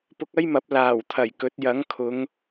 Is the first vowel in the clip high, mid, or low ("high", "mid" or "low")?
high